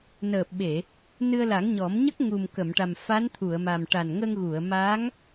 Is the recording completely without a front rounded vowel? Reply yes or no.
yes